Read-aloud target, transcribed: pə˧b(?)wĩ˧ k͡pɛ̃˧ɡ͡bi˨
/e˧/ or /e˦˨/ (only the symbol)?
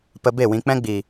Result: e˦˨